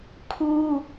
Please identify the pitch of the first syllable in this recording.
high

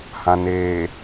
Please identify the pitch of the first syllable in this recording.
low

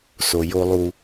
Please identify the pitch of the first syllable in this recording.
low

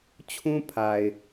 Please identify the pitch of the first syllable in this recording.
high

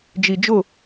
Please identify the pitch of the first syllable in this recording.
low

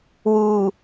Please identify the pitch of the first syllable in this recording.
low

